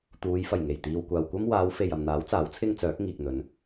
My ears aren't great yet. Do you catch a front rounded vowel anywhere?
yes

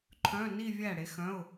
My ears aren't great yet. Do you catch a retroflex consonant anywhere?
yes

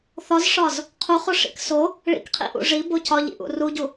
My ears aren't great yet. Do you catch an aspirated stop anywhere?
yes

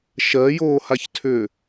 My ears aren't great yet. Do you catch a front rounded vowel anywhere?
yes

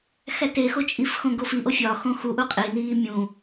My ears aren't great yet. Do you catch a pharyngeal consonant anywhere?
no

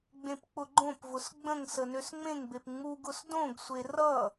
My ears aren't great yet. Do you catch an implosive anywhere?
no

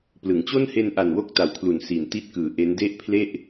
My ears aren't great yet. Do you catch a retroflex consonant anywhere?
no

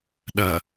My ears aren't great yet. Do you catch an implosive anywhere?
yes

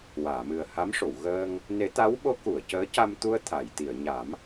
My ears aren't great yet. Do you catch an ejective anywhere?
no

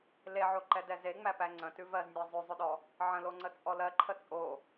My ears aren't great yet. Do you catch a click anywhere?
yes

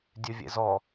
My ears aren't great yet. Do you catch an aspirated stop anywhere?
no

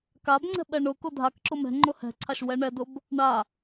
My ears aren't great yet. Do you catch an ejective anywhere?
no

